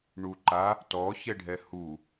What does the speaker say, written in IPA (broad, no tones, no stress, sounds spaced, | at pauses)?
ɳ u ǃ a | t ɔ ç ɛ ɖʱ ɛ h u